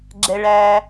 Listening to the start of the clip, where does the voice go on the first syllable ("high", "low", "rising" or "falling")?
low